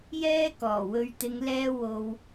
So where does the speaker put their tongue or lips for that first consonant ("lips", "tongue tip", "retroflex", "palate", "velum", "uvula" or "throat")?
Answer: palate